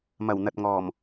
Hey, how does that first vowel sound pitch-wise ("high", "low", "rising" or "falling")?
low